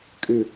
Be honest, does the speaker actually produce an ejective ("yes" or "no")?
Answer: yes